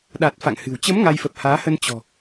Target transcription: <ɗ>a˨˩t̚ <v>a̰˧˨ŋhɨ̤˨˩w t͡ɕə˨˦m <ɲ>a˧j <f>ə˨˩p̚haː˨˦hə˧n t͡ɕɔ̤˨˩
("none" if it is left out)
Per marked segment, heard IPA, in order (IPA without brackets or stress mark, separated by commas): ɗ, f, ŋ, f